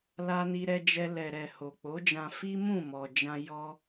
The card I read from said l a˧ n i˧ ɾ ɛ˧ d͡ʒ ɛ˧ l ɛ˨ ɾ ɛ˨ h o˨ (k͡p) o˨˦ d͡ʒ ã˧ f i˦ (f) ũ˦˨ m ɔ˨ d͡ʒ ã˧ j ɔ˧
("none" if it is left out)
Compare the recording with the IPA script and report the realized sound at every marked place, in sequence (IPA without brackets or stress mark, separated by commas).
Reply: k͡p, m